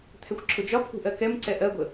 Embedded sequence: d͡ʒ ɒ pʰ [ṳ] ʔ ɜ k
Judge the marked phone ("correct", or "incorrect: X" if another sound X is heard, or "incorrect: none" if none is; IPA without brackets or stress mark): correct